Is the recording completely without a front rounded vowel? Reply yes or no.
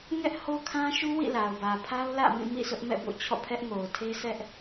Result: yes